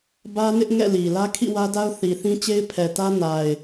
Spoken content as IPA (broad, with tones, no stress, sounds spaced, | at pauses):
b ä˦ n ɪ˦ ʔ ŋ ɛ̰˦˨ l i˨ l ä˦ kʰ ḭ˦˨ w ä˦ d a˦ ʊ̯ θ i˨ θ ĩ˦ t͡ɕ e˦ ɪ̯ pʰ ɛ˨ t ä˦ n a˨ ɪ̯